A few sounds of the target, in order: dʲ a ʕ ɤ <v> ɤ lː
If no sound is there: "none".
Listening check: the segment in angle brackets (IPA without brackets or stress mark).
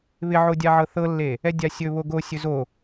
θ